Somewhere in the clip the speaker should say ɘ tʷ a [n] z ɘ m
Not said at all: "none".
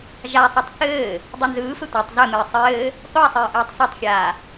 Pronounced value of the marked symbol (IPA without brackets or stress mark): tˤ